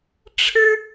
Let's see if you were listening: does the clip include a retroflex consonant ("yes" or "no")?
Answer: yes